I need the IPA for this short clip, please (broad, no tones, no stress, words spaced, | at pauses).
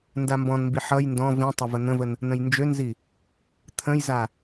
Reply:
ndambɔ̃nmbi ħʌj ndɔ̃ vĩtˤə vən̪ə̃vən | nə̃jnd͡ʒønzi | t̪ʰə̃jza